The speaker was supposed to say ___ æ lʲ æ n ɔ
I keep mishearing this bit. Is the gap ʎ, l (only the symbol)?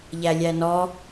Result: ʎ